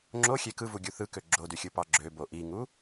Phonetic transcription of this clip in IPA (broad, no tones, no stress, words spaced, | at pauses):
ŋ͡ǁoxʲe kɯvuɡʲu θɯkø ɡ͡ǁodyxʲɯpɑ ɡ͡ǁøbo ʔiŋu